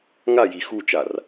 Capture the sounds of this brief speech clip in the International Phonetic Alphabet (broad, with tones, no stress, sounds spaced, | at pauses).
ŋ a˦˨ j i˨ x u˦˨ t͡ʃ a˨ r